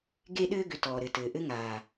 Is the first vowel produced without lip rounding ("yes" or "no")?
yes